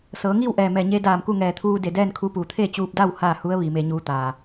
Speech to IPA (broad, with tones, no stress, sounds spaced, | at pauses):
s ɤː˩˧ ŋ iː˥˨ w ʔ ɛː˧˩ m ɛː˧˩ ɲ e˧ d aː˧˩ m k u˥˨ ŋ ɛː˧˩ t̪ʰ uː˧ d e˧˩ d ɛː˥˨ n kʰ u˧ p uː˩ t̪ʰ e˥˨ t͡ɕ uː˧ p̚ d a˥˨ w h aː˥˨ h u˧˥ ə̯ ʋ iː˩˧ m e˧ ɲ uː˧ t̪ aː˩